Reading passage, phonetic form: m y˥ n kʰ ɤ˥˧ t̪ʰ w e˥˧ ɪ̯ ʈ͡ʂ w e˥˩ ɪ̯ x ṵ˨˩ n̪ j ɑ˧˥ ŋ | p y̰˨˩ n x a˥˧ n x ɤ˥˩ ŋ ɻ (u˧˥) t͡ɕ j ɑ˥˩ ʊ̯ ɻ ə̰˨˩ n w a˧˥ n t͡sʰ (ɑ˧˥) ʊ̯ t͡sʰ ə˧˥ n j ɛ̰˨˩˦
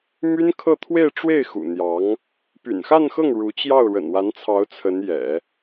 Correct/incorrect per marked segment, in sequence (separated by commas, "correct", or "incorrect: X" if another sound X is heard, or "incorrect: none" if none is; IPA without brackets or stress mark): correct, correct